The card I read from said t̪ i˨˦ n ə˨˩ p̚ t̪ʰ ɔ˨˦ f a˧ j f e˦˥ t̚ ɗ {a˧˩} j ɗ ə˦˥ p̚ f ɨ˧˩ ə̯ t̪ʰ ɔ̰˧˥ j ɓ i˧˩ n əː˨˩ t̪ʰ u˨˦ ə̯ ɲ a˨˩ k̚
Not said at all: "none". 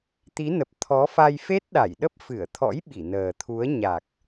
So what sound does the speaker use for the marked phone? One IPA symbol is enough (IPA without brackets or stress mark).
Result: a˧˩